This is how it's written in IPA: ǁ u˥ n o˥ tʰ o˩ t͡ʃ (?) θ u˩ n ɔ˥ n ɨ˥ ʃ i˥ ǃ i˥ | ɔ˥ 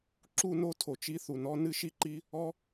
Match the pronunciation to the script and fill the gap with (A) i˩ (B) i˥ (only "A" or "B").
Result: B